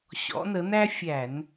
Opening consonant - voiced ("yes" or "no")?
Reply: no